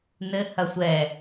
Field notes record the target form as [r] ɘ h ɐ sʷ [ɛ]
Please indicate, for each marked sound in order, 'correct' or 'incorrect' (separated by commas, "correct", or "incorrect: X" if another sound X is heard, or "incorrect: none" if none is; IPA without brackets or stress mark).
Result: incorrect: n, correct